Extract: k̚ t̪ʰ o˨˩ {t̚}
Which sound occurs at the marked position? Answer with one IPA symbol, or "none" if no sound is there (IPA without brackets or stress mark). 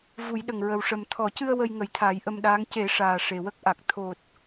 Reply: t̚